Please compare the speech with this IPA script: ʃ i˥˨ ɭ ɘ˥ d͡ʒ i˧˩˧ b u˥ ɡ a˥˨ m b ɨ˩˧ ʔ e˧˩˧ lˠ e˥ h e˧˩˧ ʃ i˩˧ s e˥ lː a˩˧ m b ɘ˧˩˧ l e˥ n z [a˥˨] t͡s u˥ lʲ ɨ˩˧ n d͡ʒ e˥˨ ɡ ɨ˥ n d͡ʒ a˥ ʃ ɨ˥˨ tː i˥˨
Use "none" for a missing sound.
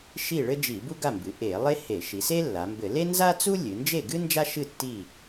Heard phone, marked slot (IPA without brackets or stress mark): a˥